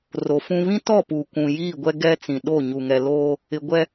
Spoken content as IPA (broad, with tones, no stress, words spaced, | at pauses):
ro˨fũ˦ βĩ˦tɔ˦˨puː˨ kʷũ˨jiː˦˨ɡʷɛ˦ ɡɛ˦ t͡sĩ˨ɗo˦˨ ɲu˨ŋɛ˨ loː˦ | ɪ˨ɡʷɛ˦